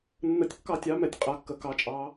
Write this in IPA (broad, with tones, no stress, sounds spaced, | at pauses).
nː ə˧˥ tʲ kː ɑ˥˨ tʲ ɑ˧˥ m ɛ˩˧ tʲ qʼ a˩˧ kː ə˩˧ k ɑ˧˥ t͡ʃʼ ɑ˧˥